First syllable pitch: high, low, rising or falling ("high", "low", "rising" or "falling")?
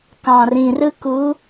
low